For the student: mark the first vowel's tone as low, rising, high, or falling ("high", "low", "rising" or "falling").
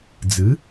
rising